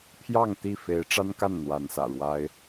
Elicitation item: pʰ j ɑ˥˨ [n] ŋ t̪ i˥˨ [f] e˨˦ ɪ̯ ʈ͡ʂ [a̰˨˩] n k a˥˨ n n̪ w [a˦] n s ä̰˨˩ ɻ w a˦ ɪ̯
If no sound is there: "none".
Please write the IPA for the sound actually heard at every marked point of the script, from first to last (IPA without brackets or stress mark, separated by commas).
none, f, a˦, a˨˦